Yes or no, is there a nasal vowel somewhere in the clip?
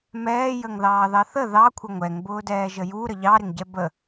no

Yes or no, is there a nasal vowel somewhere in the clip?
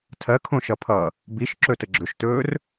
yes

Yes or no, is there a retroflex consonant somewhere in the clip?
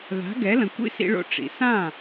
yes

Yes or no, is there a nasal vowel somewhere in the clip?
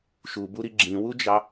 yes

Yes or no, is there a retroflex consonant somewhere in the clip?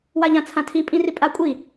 no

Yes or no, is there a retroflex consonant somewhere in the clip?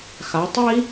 no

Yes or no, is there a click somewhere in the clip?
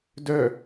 no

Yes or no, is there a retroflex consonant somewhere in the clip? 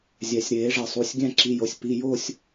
yes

